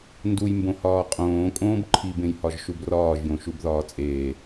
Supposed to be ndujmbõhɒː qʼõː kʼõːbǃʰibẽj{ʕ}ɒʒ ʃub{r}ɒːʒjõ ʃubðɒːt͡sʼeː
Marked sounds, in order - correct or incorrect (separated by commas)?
incorrect, correct